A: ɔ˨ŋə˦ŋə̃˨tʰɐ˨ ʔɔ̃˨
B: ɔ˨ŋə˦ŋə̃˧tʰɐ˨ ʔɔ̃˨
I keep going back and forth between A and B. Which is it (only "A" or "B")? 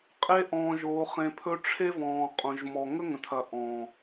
A